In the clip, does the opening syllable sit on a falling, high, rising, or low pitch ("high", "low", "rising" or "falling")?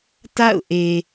falling